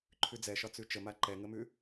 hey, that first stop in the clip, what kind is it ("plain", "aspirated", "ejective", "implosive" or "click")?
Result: click